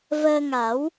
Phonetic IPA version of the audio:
v əː˧ ŋ a˨˩˦ w

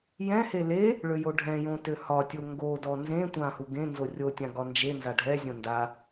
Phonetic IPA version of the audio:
j ɛ̃ h e l e | ɭ ø j o ɖʱ ɛ̃ j õ t ø h ɒ tʲ o ŋ ɡ o d ɔ n z ẽ tʷ ã h u ɡ ẽ n z o rʲ o tʲ ã ɡ ɒ n d͡ʒ e n z a ɖʱ ɛ zʲ õ n d a

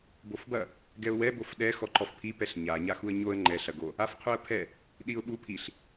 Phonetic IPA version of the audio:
b o f b ɐ | ɡ ɛ ʊ̯ w ɛ b o f ɗ ɛ x ɔ ǃ ɔ f pʰ i p ɛ ɬ ɲ a ɲ a x u ə̯ ɲ o ə̯ ŋ͡ǃ ɛ ɬ ɐ ɡ o | a f qʰ u ə̯ pʰ ɛ | ɗ i ʊ̯ ɓ u pʰ i ɬ

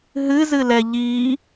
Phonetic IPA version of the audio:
ɦ ɨ z ɨ l ɛ ʎ i

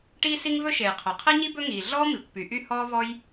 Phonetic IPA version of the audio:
ʈ iː˥ s i˥ ŋ v ɵ˥ ʃ e˩ j qʰ œ˩ qʰ i˥ ɲ i˥ b ɵ˥ ŋ iː˩ ɮ ɔː˥ m i˩ kʷ p y˩ ʔ y˥ h ɔː˥ v ɔ˥ j

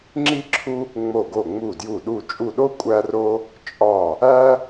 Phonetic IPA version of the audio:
ŋ͡ǁ i˦ ǁʰ u˦ | ŋ͡m o˧˩ ɡ o˧˩ ŋ͡m u˧˩ d j u˧˩ ɗ u˧˩ t͡ʃʼ u˧˩ ɗ o˦ kʷʼ æ˦ r o˦ | t͡ʃʼ ɒ˧˩ | æ˦

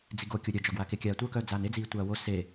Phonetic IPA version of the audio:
d͡z i ɡ o kʲ o ɾʲ œ d͡ʒ ɒ ɡ w a k e kʲ aː tʷ œ k œː d͡z aː n e d͡z iː tʷ aː w o s e

